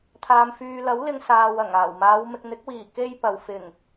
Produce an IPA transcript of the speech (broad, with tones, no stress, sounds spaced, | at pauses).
t̪ʰ aː˨ m f yː˨ l ɐ˨˥ w l ɪ˧ ŋ s aː˨ w ɐ˨˩ ŋ aː˨˩ w m aː˨˧ w m ɪ˨ k̚ n̪ ɪ˨˥ k̚ w iː˨˩ k e˥ j p ɐ˨ w f ɪ˨˩ ŋ